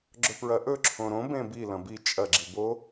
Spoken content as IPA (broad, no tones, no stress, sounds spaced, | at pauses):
ɡ͡ǁ ɵ p ɹ ɐ ʔ ɵ ǁʰ õ ɾ õ b ẽ b i l ɐ̃ b i t͡ʃʼ ɐ ɡ͡ǁ i b o